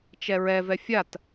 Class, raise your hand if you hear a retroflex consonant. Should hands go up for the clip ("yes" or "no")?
no